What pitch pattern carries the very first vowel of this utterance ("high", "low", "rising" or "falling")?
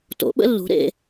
rising